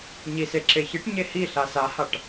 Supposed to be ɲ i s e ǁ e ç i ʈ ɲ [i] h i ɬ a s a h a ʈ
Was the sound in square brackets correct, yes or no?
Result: no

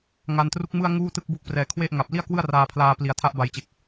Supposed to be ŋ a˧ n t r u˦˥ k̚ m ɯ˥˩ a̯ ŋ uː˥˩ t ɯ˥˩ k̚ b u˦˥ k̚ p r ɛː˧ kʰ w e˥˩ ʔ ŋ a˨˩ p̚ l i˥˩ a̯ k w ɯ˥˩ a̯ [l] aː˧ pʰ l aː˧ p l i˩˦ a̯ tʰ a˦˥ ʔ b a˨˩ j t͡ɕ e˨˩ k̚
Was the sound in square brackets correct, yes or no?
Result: no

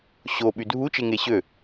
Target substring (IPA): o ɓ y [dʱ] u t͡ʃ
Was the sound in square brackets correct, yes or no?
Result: yes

